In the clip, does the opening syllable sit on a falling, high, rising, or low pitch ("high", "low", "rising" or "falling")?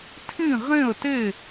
falling